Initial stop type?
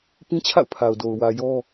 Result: plain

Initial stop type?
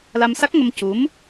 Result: plain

